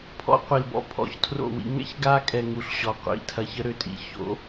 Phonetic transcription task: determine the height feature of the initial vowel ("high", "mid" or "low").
mid